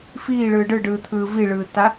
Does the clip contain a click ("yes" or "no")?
no